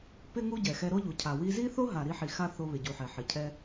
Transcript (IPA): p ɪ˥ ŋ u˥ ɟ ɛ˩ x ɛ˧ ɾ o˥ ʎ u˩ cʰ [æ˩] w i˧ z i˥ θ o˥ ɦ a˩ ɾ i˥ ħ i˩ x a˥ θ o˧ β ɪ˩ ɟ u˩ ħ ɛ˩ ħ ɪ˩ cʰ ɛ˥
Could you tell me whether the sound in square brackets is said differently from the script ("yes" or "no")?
yes